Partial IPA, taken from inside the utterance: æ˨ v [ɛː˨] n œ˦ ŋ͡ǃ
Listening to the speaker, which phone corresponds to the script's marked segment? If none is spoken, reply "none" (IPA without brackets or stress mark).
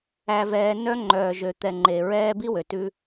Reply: ɛː˨